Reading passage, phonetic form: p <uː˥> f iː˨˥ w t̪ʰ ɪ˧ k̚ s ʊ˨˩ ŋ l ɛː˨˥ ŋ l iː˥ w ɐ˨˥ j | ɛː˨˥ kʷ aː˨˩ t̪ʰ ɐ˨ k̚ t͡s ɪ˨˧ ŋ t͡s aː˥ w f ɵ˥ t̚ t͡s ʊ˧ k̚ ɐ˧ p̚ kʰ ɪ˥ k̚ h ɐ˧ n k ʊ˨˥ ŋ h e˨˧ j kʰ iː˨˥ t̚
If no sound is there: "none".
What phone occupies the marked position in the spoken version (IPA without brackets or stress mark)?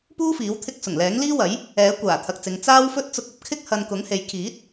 uː˥